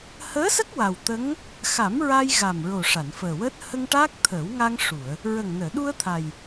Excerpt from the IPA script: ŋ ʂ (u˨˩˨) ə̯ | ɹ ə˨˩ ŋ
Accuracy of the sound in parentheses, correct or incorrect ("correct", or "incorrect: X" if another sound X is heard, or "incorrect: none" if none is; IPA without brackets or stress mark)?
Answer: correct